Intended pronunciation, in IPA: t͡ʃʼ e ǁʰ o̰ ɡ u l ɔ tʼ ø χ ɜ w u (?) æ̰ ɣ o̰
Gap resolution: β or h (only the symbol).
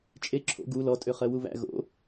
β